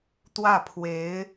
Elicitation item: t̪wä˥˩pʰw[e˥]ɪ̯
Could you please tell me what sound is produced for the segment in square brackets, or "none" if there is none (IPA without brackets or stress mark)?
e˧˥